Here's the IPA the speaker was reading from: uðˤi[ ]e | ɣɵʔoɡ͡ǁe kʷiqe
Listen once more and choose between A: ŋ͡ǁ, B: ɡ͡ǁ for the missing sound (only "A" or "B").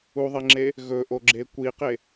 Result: A